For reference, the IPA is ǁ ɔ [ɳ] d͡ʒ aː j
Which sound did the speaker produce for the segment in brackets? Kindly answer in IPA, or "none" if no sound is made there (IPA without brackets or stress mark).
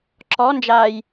n